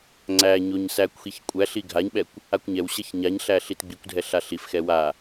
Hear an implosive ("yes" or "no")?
yes